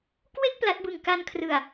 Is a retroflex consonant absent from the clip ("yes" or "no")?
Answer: yes